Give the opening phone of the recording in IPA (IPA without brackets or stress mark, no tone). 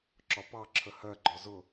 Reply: ǁ